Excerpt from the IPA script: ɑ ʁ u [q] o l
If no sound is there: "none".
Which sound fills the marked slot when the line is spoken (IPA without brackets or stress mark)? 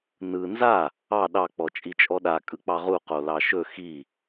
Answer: q